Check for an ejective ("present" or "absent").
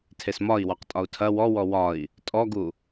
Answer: present